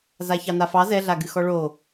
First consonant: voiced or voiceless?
voiced